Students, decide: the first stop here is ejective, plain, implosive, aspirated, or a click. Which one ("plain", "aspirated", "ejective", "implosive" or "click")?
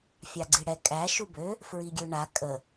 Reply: click